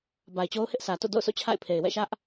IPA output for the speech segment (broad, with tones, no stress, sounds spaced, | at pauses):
b a˨ ɪ̯ t͡ɕ o˦ ʊ̯ h ɪ˦ ʔ s ä˨ t o̰˦˨ d o̰˦˨ ʊ̯ sʰ o̰˦˨ t͡ɕʰ a̰˦˨ ɪ̯ pʰ e˨ ɪ̯ w ɛ̰˦˨ ʃ ä˦ ʔ